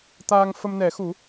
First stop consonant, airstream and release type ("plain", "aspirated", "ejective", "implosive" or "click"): plain